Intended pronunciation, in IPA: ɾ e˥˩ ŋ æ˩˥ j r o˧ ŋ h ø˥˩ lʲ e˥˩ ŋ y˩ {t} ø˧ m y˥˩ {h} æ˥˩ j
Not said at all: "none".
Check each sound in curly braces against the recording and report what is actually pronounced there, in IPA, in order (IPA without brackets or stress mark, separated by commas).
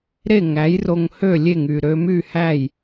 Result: ɾ, h